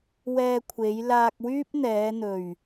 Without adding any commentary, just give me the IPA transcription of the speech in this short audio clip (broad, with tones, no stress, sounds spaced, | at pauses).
w ɛː˧ kʷʰ e˨˧ j l aː˧ k̚ w yː˥ p̚ n̪ ɛː˨˧ n̪ ɵ˨˩ ɥ